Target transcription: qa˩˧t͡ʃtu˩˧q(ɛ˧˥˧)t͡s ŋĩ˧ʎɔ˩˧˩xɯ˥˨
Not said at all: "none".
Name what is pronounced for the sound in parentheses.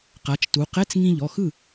ɛ˧˥˧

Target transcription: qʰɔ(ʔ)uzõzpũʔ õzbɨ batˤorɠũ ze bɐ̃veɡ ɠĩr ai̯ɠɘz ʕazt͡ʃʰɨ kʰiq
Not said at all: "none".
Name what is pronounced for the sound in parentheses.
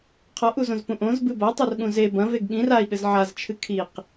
ʔ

